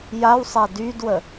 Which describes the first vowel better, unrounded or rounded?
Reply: unrounded